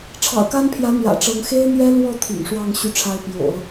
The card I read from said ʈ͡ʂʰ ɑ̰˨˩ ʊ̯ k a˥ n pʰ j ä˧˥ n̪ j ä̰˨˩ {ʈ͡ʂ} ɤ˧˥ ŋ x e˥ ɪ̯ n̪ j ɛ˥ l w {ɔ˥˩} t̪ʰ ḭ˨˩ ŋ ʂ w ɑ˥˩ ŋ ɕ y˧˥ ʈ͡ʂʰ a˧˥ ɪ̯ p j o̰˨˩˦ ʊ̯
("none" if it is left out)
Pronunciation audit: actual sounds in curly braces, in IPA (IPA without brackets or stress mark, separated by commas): ʈ͡ʂ, ɔ˥˩